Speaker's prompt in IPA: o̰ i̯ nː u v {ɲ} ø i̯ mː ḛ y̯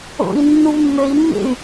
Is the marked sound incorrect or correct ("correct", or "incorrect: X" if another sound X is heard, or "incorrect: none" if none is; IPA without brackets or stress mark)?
incorrect: mː